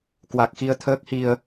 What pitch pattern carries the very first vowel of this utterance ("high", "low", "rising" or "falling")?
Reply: low